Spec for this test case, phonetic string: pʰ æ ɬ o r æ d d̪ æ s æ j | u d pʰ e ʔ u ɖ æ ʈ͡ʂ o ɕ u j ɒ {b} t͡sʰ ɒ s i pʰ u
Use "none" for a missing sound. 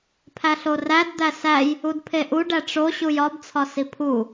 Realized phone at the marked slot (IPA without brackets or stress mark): b